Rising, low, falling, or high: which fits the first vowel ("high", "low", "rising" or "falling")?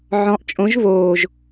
rising